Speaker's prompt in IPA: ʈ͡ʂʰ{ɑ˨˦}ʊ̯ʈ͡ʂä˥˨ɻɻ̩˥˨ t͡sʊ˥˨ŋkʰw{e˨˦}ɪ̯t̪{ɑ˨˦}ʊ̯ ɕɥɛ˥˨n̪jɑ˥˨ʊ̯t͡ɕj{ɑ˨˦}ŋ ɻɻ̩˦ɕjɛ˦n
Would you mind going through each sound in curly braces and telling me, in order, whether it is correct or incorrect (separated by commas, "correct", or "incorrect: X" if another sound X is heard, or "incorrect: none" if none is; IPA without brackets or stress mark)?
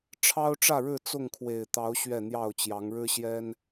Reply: incorrect: ɑ˦, incorrect: e˨˩, correct, correct